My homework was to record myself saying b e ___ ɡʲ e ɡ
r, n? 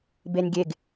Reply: n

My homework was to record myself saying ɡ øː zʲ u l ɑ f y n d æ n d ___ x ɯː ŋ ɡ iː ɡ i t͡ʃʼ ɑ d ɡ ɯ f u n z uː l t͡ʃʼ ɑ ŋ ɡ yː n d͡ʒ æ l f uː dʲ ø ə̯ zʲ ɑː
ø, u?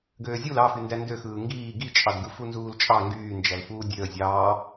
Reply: ø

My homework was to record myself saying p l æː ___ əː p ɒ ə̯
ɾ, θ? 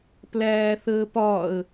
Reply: θ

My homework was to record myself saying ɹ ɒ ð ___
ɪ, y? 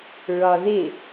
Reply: ɪ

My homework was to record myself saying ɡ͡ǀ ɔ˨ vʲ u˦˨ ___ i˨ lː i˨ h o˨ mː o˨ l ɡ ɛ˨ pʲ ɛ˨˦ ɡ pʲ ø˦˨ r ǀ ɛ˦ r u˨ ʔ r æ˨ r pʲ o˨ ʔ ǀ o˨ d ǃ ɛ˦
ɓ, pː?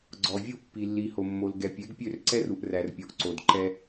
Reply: pː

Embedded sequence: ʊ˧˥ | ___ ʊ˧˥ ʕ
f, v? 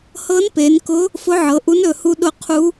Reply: f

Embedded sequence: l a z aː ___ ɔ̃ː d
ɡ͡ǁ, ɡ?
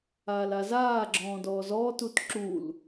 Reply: ɡ͡ǁ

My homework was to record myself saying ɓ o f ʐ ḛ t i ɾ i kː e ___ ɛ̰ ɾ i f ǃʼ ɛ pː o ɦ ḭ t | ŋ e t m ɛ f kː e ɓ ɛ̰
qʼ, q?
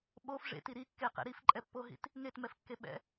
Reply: q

